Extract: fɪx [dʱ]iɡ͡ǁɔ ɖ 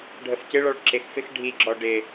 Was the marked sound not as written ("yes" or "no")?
yes